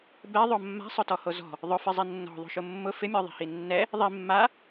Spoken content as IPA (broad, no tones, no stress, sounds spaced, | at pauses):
b ɛ ðˤ o mː a̤ sˤ ʊ t ɔ h o z ɔ̤ | ðˤ ʊ f ɪ zˤ i nː ɔ̤ ðˤ o̤ ʃ ʊ mː ʊ f ɪ mʲ ɔ ðˤ i̤ h i nː ɛ | ðˤ i mː a